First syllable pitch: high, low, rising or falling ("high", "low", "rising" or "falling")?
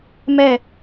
falling